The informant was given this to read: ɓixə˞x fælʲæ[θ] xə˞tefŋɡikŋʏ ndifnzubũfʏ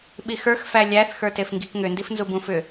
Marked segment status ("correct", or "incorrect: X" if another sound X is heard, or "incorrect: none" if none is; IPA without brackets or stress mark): correct